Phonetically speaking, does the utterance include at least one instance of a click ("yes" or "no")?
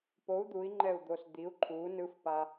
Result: yes